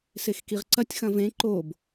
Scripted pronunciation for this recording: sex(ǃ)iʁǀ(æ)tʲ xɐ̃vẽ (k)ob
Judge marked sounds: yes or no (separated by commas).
no, no, no